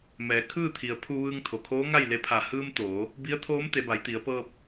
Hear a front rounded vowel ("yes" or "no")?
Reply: no